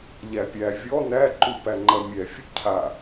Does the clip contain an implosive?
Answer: no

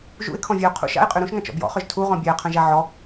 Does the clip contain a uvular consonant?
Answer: yes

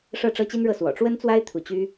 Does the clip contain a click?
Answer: no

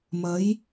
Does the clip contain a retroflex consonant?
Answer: no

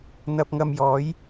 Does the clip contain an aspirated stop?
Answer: no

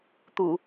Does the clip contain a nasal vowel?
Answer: no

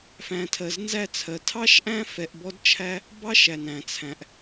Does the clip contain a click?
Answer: no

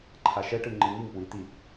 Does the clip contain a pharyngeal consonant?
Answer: no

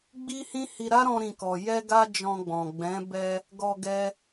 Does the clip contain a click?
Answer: no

